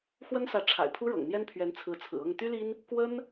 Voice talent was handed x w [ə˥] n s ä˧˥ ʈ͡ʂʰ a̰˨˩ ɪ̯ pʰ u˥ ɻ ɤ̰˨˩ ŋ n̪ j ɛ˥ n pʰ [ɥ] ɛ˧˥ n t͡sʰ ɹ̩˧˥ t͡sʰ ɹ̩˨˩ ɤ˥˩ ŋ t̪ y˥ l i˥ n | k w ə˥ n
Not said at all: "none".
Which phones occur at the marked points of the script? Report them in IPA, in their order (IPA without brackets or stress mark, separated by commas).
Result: ə˥, ɥ